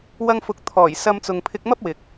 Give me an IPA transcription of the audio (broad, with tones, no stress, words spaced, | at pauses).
wɐ˧ŋfʊ˨k̚ t̪ʰɔː˨˩jsɐ˧mt͡sʊ˨ŋpʰɪ˧k̚ mɐ˥p̚wɪ˨k̚